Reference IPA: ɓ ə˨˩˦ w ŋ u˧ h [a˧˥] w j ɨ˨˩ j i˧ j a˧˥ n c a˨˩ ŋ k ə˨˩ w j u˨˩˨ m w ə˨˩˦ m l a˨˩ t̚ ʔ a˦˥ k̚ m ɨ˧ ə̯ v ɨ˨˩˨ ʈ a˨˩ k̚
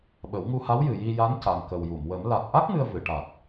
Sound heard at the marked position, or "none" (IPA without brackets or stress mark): a˧˥